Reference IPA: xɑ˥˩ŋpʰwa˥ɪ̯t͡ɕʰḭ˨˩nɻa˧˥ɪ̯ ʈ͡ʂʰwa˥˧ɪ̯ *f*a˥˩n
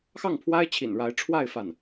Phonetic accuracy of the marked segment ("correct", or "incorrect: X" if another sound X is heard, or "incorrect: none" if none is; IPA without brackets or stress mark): correct